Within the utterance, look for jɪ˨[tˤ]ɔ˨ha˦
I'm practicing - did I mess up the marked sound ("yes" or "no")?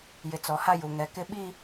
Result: yes